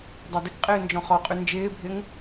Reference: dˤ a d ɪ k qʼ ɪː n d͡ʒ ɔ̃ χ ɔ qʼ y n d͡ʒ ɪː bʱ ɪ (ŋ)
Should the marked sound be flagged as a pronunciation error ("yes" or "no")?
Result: no